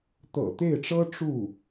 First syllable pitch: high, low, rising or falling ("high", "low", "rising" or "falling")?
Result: low